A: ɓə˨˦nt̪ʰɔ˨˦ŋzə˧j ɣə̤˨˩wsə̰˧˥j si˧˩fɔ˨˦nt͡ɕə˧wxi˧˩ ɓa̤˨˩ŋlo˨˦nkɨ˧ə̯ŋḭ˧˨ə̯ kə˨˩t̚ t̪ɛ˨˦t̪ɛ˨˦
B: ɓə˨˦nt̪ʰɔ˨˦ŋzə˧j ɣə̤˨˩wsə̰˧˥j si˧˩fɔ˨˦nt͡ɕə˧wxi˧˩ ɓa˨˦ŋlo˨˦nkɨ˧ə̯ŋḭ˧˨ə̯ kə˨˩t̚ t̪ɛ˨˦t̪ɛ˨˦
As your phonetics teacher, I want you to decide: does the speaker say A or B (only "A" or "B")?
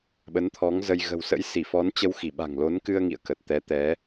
A